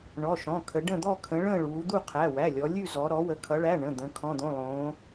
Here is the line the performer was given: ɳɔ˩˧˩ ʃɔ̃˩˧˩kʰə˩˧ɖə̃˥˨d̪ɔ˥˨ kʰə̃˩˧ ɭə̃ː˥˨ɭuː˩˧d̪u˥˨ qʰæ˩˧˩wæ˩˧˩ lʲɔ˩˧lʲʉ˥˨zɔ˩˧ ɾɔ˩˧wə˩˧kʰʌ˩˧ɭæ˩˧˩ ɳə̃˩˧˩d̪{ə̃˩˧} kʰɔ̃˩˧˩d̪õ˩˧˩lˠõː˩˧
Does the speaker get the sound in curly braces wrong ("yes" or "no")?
no